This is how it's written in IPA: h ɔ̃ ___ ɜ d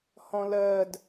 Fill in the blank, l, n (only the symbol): l